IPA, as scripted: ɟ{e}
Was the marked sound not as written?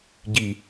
yes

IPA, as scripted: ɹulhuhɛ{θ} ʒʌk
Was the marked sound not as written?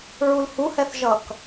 no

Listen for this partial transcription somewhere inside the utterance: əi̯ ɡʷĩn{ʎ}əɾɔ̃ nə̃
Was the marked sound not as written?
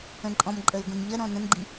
no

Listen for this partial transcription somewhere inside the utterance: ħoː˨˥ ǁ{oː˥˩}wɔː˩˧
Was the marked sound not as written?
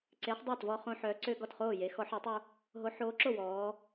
yes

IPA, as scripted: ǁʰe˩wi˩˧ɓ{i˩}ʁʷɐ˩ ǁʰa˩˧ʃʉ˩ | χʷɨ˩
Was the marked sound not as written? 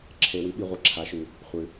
no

